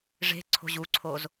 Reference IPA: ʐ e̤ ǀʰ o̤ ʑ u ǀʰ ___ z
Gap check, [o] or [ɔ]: o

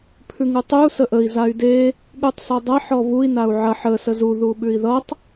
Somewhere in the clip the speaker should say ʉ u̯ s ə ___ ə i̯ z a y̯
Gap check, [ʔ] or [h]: ʔ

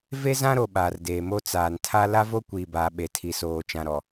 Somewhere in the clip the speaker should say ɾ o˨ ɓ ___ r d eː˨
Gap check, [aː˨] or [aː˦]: aː˨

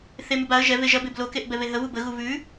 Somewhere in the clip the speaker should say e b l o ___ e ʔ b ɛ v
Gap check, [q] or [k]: k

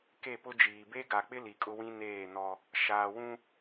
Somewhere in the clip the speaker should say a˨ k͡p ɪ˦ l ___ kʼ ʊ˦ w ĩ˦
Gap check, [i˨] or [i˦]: i˨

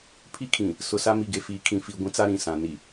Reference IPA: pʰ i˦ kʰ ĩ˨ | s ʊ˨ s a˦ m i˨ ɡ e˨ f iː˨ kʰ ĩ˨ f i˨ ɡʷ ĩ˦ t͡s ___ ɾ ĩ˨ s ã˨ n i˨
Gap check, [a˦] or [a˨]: a˦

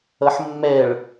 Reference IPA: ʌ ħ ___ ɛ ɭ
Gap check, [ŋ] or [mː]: mː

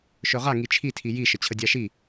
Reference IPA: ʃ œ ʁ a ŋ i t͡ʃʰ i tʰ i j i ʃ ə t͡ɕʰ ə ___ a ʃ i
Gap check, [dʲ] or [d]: dʲ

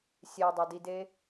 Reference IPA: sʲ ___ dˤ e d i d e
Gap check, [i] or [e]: e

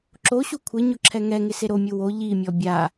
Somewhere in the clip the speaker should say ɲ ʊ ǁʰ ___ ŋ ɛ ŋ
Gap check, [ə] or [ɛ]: ɛ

